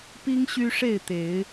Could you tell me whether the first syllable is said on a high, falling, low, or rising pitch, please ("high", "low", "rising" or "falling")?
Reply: high